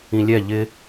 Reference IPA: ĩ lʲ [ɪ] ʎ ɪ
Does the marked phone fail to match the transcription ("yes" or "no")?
yes